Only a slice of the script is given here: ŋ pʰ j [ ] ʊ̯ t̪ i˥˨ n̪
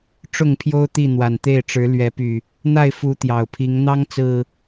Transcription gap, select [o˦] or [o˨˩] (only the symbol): o˦